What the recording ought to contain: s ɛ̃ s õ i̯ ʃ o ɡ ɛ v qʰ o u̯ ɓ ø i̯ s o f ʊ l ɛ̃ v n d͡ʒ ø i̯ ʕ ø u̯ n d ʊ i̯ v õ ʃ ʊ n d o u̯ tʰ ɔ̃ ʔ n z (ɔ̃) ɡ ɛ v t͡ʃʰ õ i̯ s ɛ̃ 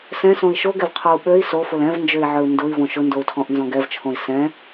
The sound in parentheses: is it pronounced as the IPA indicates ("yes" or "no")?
yes